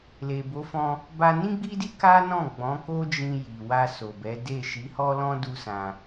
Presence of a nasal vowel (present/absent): present